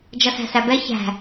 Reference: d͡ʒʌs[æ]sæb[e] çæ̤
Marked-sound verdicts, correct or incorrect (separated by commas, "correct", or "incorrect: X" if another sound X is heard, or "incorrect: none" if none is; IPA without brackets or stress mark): incorrect: æ̤, incorrect: ɛ